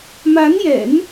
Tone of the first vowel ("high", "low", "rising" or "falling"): rising